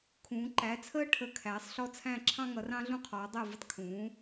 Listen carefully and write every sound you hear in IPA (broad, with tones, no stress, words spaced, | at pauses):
kʰũː˩˧ ǃæ˩˧t͡sʰəː˧ʈʰə˩˧˩ kʰæː˩˧sˤɬɔ˧˩t͡sʰæ̃˧˩ ǁʰɑ̃˧ŋʌ˩˧rɑ̃˧ ɮũ˧qʰɔː˩˧dˤɜ˧˩vɪ˧tˤ kʰũː˩˧